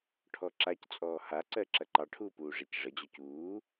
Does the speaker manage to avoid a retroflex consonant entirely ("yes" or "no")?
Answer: no